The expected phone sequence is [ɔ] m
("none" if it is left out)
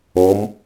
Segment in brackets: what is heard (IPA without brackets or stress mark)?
ɔ